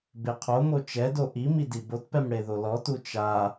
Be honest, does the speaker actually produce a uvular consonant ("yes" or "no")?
yes